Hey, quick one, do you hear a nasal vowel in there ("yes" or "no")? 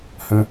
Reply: yes